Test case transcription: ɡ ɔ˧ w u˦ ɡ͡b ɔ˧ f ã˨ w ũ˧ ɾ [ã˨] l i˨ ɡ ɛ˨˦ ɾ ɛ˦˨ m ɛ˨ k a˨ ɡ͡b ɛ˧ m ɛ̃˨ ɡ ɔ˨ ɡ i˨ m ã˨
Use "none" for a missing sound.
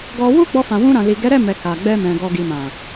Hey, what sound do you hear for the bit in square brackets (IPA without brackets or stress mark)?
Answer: ã˨